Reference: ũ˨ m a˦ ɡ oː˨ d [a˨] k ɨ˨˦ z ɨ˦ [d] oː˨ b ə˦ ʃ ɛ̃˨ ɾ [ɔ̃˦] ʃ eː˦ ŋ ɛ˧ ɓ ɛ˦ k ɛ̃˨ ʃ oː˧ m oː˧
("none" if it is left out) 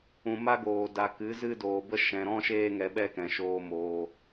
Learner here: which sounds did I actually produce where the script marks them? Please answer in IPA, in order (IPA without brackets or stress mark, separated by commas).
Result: a˨, d, ɔ̃˦